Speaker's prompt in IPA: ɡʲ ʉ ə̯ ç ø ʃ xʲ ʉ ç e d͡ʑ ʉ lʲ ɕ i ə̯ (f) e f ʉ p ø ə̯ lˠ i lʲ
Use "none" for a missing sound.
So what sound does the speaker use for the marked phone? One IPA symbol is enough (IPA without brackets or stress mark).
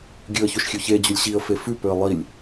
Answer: f